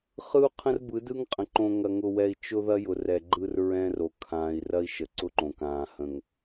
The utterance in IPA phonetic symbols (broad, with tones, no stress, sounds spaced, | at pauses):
χ ɯ˦ u̯ qʰ ə̃˦ r b ɯ˨˦ d ɯ˦ ŋ qʼ ə̃˨ ǃ õ˨ ŋ ɐ˨ ŋ ʊ˨ w ɛ˨ i̯ t͡ʃ ʊ˦ ð ɐ˦ j ʊ˨ r ɛ˨ ɡ͡ǃ ɯ˦ r ɹ ɛ̃˦ r o˨ kʰ ãː˨ i̯ r ɐ˦ i̯ ʃ ə˨ ǀ ʊ˦ ǃ õ˨ k ãː˨ h ə̃˨ ŋ